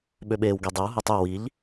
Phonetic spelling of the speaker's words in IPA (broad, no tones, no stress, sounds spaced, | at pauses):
ɓ ø ɓ eː w ɡ e dˤ e w ɦ e tˤ y w i ʎ